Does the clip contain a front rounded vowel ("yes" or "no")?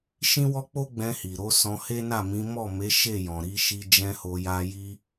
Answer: no